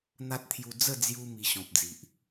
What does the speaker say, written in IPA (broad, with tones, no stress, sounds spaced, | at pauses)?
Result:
n̪ a˦ t̚ t̪ʰ j u˧ d͡z ə˥˧ d͡z j u˧ m i˧ ɕ ɔ̃˨ p̚ d͡z i˨ ʔ